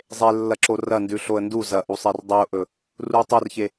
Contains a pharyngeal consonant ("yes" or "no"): no